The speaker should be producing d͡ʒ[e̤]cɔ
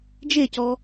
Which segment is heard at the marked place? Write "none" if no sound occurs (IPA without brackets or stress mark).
e